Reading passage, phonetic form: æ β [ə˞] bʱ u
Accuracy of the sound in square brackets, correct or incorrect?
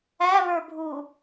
correct